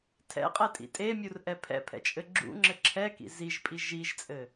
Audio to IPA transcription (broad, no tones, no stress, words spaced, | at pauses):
tʰɛ̰qʼɛtʼḭ tʼemʲurʔɛ pʰɛ̰pʰɛ̰t͡ʃʼɘ ɡ͡ǁṵŋ͡ǁɘ ǁʰɛkḭ ziʒpʼi ʒiʒt͡sʼɘ